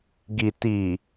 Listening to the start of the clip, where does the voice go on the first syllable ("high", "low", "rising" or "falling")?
low